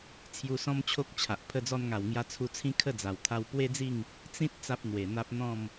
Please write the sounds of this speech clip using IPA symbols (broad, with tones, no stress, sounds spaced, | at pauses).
t͡sʰ j u˧ s ɔ̃˦ m t͡ɕʰ o˦ k̚ t͡ɕʰ a˨ ʔ pʰ ə˧ d͡z ɔ˧ n ŋ a˨˩ w ŋ j a˧ t͡sʰ u˧ t͡sʰ ĩ˦ kʰ ə˥˧ d͡z a˨˩ w t̪ʰ a˧ w p w e˦ d͡z i˥˧ ŋ | t͡s ĩ˦ t̚ t͡s a˦ p̚ n̪ w e˨˩ n̪ a˦ p̚ n̪ ɔ̃˥˧ m